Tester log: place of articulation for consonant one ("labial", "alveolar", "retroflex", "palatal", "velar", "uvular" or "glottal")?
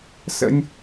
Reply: alveolar